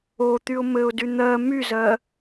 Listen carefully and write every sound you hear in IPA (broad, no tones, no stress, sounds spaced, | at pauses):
o t̪ y ʊ̯ m ɘ ʊ̯ d y n̪ ɜ m y z ɜ